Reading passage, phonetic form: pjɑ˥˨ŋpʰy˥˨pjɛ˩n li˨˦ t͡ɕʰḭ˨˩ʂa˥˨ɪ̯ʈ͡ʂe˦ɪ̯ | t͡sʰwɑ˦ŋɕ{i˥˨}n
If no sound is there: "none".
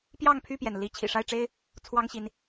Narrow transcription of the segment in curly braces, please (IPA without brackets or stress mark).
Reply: i˨˦